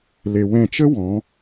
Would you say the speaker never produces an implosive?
yes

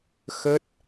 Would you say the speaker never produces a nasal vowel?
yes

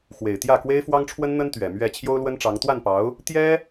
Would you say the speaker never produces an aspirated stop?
no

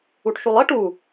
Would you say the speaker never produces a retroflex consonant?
no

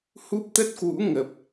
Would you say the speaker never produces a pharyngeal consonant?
yes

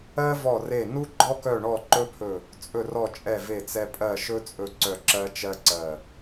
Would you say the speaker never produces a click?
no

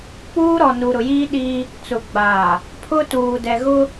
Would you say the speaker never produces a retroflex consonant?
yes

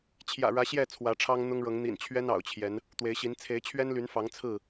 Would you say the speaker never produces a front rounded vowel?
no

